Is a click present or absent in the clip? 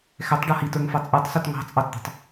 absent